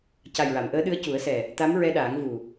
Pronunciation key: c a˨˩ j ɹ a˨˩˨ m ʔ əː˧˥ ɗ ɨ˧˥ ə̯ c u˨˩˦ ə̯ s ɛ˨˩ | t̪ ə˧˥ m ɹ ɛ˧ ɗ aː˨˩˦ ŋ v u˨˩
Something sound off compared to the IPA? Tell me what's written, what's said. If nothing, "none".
ə˧˥ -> a˧˥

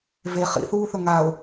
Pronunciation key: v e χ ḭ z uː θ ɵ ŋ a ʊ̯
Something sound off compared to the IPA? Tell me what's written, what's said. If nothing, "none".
z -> θ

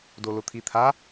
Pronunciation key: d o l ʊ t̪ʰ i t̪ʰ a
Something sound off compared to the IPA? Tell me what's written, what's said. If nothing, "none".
none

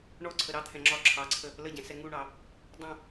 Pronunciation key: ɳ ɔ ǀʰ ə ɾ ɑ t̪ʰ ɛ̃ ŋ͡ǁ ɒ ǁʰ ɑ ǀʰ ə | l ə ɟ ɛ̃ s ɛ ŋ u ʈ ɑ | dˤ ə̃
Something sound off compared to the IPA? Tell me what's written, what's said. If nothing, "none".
ʈ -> ɳ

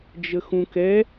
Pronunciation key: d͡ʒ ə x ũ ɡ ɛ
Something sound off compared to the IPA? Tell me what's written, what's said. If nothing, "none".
ɡ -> k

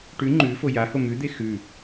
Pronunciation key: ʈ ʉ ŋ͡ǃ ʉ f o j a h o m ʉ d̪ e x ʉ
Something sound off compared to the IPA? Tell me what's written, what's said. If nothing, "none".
none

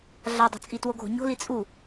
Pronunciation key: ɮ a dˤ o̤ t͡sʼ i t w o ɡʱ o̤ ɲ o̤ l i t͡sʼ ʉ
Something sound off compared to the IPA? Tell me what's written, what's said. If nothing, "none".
ʉ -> u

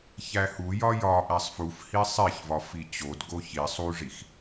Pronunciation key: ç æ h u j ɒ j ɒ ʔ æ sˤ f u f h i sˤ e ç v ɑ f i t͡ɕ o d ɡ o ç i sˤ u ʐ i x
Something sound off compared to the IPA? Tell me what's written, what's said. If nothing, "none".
ɑ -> ɒ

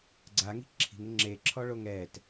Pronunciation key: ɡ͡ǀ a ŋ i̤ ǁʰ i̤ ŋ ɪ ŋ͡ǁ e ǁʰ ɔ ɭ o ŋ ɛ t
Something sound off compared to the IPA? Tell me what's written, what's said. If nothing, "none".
none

